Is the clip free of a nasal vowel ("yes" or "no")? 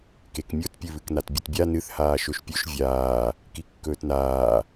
yes